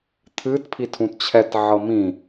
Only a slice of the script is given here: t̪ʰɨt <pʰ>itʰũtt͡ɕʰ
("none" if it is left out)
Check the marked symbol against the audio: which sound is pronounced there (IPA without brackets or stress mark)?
pʰ